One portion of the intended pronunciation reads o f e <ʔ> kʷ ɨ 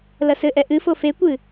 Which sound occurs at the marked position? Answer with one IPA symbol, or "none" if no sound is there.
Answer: none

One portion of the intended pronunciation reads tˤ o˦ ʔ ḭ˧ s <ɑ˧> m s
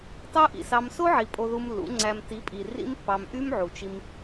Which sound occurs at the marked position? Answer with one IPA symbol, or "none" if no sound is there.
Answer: ɑ˧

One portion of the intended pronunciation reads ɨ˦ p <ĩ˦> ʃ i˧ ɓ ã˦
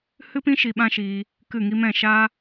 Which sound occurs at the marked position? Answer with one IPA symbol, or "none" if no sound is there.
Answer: ĩ˦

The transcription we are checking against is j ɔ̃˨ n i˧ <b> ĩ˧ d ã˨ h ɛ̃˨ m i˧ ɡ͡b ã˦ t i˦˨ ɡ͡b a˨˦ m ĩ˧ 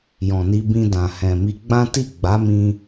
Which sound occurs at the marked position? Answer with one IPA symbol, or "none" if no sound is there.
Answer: b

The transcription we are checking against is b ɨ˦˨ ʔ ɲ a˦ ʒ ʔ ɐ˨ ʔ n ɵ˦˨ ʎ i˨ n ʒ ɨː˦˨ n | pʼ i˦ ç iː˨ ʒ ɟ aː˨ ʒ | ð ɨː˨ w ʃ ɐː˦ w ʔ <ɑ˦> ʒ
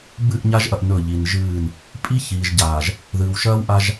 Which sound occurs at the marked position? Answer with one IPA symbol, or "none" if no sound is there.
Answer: a˦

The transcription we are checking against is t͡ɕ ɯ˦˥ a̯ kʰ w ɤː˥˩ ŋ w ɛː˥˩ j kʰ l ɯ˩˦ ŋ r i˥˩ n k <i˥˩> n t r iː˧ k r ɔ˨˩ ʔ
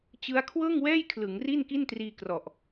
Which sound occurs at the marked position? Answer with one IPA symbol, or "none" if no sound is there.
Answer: i˥˩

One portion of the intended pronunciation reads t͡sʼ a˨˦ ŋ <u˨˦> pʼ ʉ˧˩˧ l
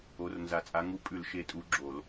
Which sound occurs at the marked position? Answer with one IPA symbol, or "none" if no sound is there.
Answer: u˨˦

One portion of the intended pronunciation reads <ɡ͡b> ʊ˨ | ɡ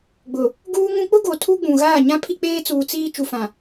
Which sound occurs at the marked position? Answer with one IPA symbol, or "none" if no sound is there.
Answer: ɡ͡b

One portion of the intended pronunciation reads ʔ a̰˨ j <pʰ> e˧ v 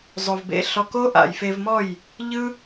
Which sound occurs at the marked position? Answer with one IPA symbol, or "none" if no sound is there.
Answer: f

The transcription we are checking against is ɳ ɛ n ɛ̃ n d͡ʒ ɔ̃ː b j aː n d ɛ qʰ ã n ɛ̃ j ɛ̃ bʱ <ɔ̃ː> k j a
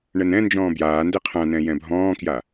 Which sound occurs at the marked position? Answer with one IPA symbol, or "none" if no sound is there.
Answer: ɔ̃ː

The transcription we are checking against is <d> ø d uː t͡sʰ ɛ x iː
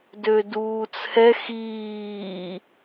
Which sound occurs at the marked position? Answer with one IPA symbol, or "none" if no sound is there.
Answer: d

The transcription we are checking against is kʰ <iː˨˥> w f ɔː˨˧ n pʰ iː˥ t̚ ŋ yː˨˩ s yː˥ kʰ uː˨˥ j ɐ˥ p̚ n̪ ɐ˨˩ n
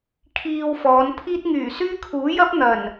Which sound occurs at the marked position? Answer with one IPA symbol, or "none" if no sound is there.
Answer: iː˧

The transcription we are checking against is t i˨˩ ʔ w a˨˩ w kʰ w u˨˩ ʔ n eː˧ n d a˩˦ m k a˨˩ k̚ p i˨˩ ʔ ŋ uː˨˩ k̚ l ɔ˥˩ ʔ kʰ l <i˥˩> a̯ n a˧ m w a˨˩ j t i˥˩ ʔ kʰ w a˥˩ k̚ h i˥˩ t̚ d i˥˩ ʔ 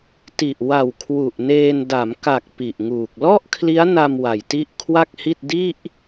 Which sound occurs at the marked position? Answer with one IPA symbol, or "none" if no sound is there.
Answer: i˦˥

